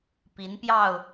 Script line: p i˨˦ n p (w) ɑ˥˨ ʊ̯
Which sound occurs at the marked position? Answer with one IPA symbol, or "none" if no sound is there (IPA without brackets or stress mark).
j